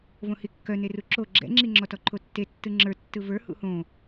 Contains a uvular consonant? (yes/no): no